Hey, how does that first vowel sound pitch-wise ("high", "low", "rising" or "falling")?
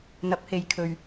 rising